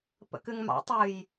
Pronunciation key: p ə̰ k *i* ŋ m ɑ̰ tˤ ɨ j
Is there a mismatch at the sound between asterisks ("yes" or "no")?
yes